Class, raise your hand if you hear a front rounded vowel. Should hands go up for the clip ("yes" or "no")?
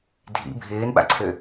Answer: yes